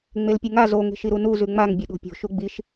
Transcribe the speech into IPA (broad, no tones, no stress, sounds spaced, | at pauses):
ŋ͡m e l pʲ ɨ ŋ a z o ŋ e̤ ʃ i ɾ u n u z ʉ ŋ͡m a ŋ bʲ ɵ ɗ o̤ pʲ o̤ ʃ u ɡ͡b i ʃ